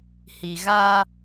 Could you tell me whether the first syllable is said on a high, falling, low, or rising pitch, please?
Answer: low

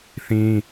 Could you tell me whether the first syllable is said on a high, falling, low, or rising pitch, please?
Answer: high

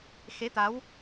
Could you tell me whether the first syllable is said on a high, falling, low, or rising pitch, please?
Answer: rising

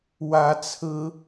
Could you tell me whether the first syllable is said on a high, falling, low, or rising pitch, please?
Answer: rising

